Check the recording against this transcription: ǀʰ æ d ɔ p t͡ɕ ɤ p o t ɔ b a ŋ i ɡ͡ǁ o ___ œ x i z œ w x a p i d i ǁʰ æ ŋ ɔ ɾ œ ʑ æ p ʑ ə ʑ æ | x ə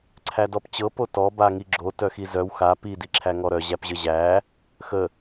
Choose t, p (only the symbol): t